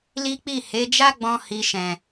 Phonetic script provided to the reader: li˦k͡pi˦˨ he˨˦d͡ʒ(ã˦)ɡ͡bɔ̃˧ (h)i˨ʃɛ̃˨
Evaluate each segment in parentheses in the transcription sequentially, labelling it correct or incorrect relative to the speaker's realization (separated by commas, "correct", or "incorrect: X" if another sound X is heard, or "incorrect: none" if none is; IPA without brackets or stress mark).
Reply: incorrect: a˦, correct